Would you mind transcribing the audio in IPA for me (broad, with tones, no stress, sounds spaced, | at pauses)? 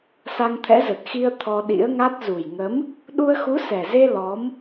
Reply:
s a˧ ŋ t̪ʰ ɛ̰˧˥ z ə˨˩ t̚ x i˧ ə̯ t̪ʰ ɔ˧ ɗ ḭ˧˥ ə̯ ŋ a˦˥ t̚ z u˨˩ j ŋ ə˨˦ m | ɗ u˧ ə̯ x u˨˦ s ɛ˨˩ z e˧ l ɔ˨˦ m